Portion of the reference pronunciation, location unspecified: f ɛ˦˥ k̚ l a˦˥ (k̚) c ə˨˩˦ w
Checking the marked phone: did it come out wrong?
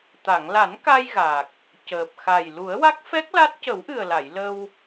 yes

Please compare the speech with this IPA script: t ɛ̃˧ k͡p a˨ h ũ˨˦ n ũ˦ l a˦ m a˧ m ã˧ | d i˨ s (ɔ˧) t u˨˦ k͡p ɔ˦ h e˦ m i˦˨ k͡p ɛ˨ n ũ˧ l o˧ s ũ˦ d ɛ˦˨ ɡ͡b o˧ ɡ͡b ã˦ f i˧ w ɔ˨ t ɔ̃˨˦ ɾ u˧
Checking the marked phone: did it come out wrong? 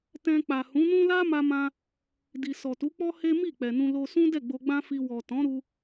yes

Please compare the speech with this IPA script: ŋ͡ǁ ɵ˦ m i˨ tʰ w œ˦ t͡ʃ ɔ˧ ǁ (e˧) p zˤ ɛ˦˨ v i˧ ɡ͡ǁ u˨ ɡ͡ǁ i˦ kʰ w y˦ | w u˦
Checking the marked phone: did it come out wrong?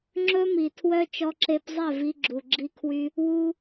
no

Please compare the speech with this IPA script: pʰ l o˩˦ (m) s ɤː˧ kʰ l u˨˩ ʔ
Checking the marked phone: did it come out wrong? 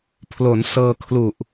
yes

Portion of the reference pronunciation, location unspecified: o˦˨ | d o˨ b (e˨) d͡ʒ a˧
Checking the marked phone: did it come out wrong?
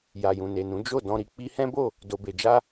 no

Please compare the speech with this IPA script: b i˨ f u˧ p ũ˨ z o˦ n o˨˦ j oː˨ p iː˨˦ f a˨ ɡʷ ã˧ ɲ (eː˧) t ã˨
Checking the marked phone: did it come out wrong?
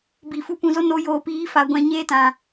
yes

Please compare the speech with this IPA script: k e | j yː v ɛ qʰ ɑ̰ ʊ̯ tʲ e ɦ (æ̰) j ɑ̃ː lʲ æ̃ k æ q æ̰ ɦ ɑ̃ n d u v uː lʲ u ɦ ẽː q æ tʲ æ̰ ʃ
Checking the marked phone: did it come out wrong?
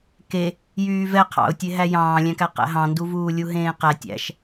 yes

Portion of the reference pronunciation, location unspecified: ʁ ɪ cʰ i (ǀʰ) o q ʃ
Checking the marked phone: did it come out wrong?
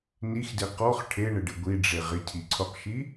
no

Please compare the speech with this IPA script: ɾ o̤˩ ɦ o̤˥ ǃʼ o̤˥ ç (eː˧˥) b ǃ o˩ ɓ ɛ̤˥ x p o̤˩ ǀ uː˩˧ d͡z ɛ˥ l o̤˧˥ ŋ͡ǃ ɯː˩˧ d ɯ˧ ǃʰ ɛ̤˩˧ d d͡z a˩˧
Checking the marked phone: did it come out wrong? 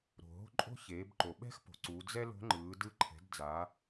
yes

